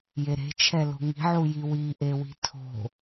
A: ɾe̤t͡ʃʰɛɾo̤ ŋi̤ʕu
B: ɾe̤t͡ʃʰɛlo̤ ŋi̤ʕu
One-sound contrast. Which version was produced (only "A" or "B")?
B